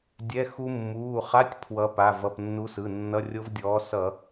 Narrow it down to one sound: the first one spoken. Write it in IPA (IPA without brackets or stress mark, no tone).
dʲ